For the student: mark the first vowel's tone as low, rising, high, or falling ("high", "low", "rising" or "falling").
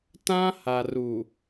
high